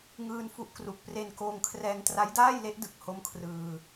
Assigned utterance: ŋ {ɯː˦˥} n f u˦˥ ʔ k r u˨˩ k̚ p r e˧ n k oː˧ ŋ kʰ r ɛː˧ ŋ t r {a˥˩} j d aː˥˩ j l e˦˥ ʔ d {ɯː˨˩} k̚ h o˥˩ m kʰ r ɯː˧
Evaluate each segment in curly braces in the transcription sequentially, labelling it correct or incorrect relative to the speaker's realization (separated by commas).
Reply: incorrect, incorrect, incorrect